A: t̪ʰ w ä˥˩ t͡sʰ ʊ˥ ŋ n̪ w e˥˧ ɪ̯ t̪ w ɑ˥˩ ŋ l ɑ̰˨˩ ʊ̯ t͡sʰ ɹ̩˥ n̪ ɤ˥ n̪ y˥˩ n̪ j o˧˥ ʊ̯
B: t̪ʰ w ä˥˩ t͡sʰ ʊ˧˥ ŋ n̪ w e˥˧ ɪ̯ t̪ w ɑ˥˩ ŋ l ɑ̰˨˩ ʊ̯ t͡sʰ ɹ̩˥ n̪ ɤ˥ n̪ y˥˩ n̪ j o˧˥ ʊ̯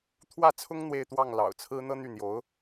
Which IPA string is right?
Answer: A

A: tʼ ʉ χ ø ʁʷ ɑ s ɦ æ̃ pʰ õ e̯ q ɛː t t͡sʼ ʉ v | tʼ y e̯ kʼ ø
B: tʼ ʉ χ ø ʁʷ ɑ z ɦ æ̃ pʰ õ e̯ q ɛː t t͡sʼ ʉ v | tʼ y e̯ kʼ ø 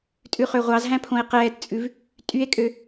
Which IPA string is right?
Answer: B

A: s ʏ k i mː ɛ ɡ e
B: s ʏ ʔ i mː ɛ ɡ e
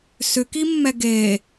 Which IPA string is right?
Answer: A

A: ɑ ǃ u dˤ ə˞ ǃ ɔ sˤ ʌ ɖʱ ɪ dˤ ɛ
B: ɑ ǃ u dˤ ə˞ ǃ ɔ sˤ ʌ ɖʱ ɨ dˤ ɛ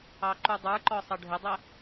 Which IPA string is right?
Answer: A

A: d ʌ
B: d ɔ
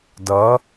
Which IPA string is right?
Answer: A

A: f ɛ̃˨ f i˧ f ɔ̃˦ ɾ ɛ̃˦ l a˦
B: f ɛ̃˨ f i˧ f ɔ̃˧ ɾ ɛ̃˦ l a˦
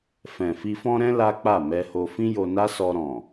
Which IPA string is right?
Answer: A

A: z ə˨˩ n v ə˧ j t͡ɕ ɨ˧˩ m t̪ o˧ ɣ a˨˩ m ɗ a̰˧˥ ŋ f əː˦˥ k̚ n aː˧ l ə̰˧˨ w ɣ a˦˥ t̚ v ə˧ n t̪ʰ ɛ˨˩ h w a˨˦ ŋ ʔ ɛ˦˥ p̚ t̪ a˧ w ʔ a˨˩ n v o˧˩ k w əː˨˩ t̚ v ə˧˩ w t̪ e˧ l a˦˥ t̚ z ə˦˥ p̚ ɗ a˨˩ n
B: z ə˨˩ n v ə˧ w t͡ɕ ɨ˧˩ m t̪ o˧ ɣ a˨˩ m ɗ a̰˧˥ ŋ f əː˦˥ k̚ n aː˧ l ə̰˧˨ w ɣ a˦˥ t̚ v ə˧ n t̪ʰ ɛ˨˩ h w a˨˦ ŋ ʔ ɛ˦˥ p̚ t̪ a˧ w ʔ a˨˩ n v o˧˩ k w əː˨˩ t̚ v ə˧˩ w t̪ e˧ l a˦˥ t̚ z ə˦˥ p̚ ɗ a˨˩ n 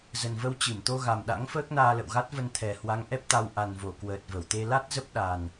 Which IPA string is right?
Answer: B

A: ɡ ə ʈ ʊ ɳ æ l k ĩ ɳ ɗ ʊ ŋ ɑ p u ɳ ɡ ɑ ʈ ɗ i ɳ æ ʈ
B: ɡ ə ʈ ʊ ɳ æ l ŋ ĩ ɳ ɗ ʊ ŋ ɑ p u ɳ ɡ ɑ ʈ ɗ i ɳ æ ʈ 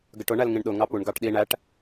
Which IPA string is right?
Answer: B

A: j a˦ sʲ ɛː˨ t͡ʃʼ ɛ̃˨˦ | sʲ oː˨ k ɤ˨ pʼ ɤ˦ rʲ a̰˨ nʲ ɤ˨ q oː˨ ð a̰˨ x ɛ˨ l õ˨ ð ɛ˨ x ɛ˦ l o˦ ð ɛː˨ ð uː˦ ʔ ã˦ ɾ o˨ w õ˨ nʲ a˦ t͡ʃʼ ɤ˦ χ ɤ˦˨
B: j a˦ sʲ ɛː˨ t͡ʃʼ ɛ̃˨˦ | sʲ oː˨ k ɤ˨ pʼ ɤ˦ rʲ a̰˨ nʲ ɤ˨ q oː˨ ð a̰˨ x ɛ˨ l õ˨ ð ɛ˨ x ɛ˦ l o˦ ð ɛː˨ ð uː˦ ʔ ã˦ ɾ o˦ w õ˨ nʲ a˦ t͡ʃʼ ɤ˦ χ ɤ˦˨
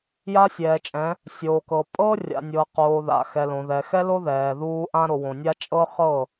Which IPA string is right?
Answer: A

